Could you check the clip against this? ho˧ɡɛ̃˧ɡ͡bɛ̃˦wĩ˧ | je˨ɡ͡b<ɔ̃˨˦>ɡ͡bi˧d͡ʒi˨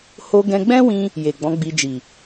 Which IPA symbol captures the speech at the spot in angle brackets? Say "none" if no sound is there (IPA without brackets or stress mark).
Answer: ɔ̃˨˦